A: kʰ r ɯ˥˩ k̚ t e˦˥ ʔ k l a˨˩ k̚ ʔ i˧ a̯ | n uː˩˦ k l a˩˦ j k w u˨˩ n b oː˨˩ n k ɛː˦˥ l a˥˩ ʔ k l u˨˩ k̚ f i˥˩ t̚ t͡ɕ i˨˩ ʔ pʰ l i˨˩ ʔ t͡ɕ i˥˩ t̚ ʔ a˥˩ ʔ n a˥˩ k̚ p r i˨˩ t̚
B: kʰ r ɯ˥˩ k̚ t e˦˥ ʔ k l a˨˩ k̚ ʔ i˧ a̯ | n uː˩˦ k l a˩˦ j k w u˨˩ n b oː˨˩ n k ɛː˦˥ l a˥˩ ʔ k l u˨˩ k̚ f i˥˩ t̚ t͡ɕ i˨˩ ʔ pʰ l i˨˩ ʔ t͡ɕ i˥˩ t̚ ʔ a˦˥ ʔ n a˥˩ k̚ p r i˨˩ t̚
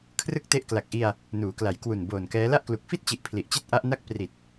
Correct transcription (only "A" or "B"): B